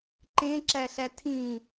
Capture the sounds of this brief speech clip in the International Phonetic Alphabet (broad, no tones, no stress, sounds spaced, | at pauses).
ǃ ẽ ǁ æ ɬ æ tʰ ĩ